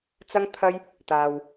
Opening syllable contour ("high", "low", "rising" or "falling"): high